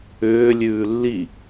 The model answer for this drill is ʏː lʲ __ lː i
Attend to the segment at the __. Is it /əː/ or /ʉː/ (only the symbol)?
ʉː